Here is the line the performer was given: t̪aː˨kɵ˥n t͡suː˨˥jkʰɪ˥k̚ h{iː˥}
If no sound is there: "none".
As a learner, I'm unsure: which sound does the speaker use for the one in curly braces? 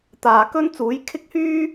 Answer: yː˥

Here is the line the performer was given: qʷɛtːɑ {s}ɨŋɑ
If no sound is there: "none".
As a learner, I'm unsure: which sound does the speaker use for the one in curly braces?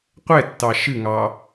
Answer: ʃ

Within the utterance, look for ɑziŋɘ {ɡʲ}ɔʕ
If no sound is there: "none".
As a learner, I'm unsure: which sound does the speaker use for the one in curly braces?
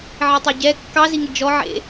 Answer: d͡ʒ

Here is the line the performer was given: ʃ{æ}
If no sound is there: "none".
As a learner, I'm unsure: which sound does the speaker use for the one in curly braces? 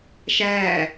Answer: æ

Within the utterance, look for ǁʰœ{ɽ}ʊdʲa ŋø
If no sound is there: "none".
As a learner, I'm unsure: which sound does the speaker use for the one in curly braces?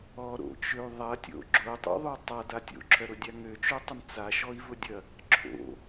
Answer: ɾ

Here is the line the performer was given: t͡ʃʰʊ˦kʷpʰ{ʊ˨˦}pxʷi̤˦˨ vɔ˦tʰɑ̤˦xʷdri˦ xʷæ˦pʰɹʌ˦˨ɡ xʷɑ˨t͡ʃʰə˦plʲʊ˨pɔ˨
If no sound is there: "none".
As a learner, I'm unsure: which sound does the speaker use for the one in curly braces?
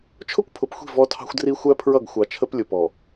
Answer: ʊ˨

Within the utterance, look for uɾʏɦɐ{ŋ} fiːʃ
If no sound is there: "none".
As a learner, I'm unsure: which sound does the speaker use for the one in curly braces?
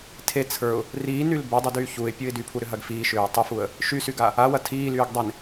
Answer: ɡ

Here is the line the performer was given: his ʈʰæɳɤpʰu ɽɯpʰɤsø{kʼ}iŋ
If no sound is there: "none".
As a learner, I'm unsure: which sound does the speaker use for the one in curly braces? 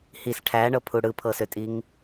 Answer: tʼ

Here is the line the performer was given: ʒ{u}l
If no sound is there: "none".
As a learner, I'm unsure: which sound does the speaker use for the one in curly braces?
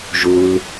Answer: u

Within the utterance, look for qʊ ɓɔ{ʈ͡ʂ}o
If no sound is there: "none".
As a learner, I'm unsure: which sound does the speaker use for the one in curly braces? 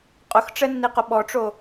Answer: ʈ͡ʂ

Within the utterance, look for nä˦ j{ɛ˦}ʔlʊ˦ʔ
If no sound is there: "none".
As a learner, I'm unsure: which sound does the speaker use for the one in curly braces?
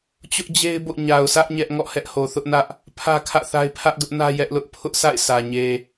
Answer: ɛ˦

